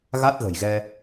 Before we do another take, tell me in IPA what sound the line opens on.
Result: ɣ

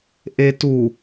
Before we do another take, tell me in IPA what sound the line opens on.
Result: ʔ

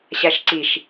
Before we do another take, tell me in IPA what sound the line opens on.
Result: ɕ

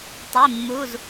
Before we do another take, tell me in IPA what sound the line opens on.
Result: tˤ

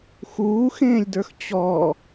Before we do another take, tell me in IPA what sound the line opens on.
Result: x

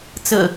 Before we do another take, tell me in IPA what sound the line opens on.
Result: t͡s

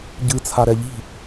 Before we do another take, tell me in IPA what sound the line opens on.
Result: ɟ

